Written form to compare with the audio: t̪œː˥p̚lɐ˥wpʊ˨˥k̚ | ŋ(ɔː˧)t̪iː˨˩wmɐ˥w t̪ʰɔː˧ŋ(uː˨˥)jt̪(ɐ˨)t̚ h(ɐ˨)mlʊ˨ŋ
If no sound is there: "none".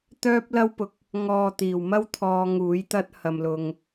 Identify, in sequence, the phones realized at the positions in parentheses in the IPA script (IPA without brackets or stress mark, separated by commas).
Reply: ɔː˨, uː˨˥, ɐ˥, ɐ˨